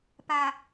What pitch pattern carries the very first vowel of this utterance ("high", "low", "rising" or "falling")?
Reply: low